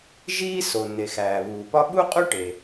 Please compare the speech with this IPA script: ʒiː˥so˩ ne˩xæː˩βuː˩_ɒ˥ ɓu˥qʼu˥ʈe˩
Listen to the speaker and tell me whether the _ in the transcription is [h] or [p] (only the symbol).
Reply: p